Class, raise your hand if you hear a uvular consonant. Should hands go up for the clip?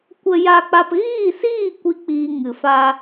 no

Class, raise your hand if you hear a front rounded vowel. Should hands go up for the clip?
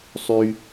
yes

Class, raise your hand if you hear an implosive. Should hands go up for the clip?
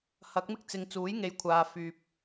no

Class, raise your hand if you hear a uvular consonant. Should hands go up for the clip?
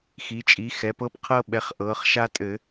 yes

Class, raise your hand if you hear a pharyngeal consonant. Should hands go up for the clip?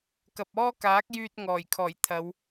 no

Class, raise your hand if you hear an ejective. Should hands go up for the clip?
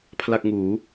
no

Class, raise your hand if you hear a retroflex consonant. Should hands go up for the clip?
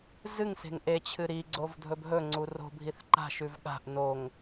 no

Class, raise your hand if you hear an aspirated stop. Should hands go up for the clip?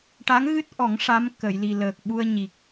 no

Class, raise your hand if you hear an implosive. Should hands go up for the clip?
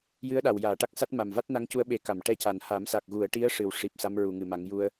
yes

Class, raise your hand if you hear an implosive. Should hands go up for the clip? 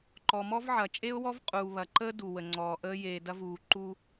no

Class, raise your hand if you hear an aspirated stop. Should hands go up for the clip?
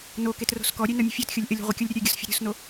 no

